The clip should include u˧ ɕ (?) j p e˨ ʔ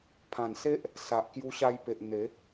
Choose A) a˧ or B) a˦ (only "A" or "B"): A